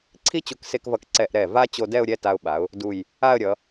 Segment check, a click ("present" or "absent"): present